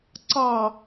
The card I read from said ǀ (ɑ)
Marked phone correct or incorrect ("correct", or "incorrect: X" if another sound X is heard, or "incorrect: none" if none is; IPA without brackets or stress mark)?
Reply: correct